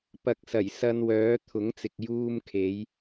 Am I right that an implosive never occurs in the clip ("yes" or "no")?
yes